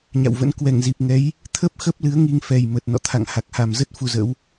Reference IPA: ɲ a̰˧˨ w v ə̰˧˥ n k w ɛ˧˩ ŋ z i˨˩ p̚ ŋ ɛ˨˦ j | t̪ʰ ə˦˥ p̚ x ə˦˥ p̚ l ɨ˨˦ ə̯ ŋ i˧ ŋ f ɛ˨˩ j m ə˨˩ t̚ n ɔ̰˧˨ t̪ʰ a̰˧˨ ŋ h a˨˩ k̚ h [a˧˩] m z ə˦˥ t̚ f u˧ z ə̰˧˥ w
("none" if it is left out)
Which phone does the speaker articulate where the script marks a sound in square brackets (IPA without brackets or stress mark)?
a˨˩